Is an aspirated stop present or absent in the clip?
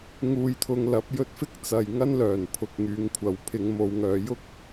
present